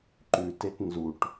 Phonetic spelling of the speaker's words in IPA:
ǃ ʉ t e t n z u ʈ

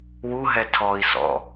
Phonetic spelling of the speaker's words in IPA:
w u ɦ ɛ tʰ ɔ i̯ s ɔ̰

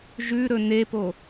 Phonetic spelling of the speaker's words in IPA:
ʒ ʉ ɾ ɵ n e p o

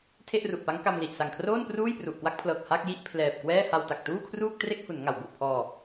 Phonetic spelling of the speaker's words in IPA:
tʰ e˥˩ ʔ r u˨˩ ʔ p a˦˥ ŋ k a˧ m l i˨˩ ʔ s a˨˩ ŋ kʰ r oː˥˩ n p r uː˥˩ j p r u˨˩ ʔ k w a˥˩ k̚ pʰ l ɤː˨˩ k̚ h a˥˩ k̚ j i˥˩ ʔ pʰ l ɛː˨˩ p̚ k w ɛː˥˩ h a˧ w t a˨˩ k̚ t uː˥˩ kʰ r uː˥˩ k̚ t r e˥˩ k̚ h u˩˦ n ŋ a˩˦ w b u˨˩ ʔ pʰ ɔː˧

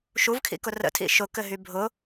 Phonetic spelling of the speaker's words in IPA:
ʃ u v kʰ ḭ k ʊ r ə̰ tʰ ḭ ʃ ʊ k ɘ ɦ y bʱ ʊ

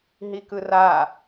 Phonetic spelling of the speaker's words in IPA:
ɦ i k ɯ r a

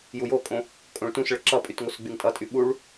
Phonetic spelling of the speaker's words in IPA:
j u j o kʼ õ | kʼ õ ɭ t ũ s ɭ ɘ ǁ ʌ pʼ y t ŋ o s ɡ͡b y ŋ tʼ ʌ tʼ y ɓ u ɭ

